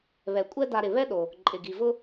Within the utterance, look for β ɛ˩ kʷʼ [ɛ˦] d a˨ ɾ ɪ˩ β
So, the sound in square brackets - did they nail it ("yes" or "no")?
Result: yes